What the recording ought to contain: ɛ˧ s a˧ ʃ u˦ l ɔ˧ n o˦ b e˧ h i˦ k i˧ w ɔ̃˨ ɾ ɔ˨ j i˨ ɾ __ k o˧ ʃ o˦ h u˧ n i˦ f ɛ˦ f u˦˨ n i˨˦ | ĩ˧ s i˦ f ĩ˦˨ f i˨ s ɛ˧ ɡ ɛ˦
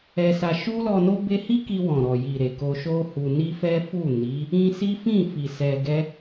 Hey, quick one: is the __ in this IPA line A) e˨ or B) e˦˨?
A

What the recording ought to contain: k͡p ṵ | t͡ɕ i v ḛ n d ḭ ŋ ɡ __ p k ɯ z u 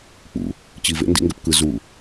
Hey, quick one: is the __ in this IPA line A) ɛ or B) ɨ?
A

